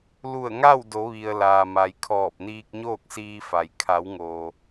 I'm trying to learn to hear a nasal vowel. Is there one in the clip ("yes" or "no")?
no